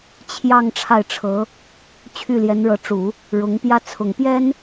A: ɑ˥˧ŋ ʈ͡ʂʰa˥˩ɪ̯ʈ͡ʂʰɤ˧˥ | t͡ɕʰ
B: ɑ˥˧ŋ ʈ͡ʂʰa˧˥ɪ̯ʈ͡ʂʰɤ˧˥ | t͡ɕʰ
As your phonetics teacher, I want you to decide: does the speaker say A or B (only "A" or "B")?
A